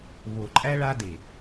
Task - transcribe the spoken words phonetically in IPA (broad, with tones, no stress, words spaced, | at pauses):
βo˨ǃʼæ˦ ɭa˦de˨